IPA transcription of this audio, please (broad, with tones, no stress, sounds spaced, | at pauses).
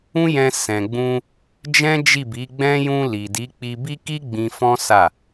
ũ˦ j ɛ̃˧ s ɛ̃˨ ɡ͡b ũ˧ | d͡ʒ ɛ̃˦ d͡ʒ i˦˨ b i˨˦ ɡ͡b ɛ̃˦ j ũ˧ l i˨ d i˨˦ k͡p i˧ b i˦ k i˦ ɡ͡b ĩ˧ f ɔ̃˦ s a˦˨